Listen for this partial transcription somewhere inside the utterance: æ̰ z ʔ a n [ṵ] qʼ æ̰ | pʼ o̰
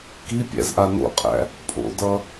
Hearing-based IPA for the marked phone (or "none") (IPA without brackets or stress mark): o̰